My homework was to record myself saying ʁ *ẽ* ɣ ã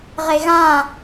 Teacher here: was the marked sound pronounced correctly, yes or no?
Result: no